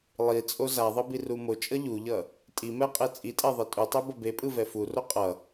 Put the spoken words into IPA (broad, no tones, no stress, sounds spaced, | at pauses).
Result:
lˠ i t͡sʼ o z a ðˤ ʌ b i r u m o t͡ʃʼ ʌ ʎ u ʎ ʌ | tʼ i m ɛ qʼ e t͡sʼ i tʼ ɛ ðˤ i tʼ u tˤ ɛ b ʌ b e pʼ ɯ v ɛ f u r o qʼ ʌ